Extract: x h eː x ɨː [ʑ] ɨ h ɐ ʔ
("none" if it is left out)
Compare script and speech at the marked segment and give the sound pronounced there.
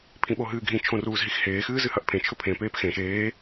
z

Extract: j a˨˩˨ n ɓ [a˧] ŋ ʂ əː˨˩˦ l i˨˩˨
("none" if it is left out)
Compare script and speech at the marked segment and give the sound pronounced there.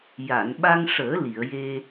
a˧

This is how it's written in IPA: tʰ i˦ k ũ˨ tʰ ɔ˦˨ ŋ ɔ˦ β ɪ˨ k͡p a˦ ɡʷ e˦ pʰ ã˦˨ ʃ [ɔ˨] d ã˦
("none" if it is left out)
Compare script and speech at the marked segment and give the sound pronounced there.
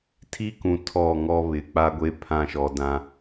ɔ˨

